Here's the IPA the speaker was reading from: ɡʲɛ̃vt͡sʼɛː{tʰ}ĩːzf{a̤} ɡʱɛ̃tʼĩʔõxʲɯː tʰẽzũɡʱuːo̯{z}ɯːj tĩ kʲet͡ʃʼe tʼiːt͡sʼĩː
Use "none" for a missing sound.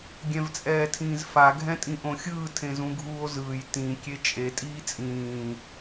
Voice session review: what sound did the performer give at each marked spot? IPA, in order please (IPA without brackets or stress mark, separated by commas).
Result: tʰ, a, z